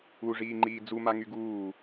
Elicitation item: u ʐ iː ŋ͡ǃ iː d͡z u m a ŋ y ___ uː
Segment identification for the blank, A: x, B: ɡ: B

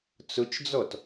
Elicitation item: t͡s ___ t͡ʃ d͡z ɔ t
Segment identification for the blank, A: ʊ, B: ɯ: A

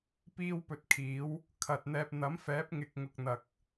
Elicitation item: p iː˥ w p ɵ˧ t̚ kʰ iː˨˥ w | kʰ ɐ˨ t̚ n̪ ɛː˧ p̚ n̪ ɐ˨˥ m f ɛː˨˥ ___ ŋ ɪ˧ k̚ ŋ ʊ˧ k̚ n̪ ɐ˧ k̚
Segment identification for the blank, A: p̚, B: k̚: A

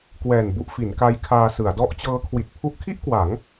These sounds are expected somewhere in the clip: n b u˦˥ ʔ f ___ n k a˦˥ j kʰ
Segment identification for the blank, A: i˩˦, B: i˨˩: A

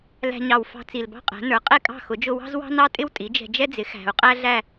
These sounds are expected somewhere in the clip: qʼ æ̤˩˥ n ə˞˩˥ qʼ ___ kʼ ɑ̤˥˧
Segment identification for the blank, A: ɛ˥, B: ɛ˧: A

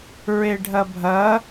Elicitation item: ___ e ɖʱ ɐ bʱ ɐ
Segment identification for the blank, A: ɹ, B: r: A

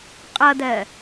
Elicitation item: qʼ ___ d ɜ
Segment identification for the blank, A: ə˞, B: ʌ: B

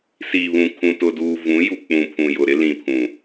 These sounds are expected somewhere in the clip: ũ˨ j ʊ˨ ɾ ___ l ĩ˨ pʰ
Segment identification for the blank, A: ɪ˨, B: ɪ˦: B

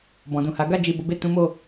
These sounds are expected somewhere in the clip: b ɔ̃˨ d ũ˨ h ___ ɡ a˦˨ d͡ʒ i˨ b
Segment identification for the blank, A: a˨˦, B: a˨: A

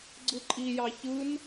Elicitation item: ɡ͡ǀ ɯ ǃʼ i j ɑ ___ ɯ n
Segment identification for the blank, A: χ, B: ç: B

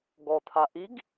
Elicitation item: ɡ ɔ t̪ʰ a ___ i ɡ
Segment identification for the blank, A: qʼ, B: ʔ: B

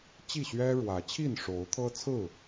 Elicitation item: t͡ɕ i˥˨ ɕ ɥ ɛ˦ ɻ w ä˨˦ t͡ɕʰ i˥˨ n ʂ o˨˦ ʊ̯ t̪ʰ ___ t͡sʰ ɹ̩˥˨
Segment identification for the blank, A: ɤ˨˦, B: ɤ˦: B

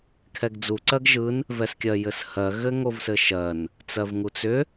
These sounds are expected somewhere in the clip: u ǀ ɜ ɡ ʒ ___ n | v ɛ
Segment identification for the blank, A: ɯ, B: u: A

